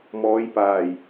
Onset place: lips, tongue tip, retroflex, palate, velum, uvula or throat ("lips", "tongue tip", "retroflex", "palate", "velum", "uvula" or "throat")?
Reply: lips